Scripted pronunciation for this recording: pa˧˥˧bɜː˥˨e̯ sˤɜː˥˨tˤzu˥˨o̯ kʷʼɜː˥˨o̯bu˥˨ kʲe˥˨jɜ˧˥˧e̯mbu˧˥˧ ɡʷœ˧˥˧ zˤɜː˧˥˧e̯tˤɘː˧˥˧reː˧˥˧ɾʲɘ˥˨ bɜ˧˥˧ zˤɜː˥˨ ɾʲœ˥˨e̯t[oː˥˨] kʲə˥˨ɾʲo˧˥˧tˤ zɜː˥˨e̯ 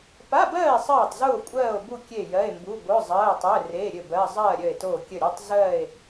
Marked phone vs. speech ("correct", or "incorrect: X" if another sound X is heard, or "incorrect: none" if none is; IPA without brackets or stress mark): correct